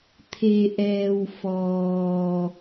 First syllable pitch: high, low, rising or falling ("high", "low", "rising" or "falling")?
low